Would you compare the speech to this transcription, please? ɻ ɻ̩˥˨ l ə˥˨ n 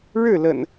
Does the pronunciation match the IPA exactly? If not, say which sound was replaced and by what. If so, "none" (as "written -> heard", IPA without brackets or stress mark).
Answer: ə˥˨ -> ə̰˨˩